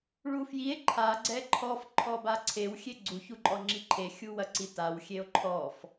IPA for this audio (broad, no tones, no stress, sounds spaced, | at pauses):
ɭ u f j i e̯ ǃʰ a ɡ͡ǀ ɛ ǃʰ ɔ f ǃʰ ɔ b a ǀʰ e w xʲ e ɡ͡ǀ u ç u ǃʼ ɔ ŋ͡ǁ i ǃʰ e xʲ u w ɐ ǀ i t a w xʲ e o̯ ǃʰ ɔ f